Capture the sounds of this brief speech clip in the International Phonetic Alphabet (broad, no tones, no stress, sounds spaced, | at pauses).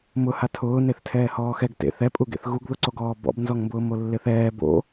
m ʊ h a tʰ ʊː n e θ tʰ ɛː h ɔː x ɛ ɡ t ḛ θ ɛ pʼ u ɡ ḛ θ ɣ u ɡ ð ʊ ǀ o ɡ ɔː b ɔ̰ b n z ɔ ŋ m b ʊː m o lː ɪ θ ɛː b o̰